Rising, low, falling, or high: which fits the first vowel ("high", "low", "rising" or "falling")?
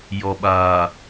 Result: low